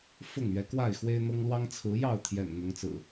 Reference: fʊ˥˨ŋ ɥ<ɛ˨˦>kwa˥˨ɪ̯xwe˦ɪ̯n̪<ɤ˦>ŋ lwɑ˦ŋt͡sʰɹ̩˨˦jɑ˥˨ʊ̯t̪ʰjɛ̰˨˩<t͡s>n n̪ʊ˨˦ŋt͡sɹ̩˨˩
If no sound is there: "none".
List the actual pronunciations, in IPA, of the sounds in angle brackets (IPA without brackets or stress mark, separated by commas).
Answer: ɛ˨˦, ɤ˦, none